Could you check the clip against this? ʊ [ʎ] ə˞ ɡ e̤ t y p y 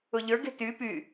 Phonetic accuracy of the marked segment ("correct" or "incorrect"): correct